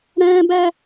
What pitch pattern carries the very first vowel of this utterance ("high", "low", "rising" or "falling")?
high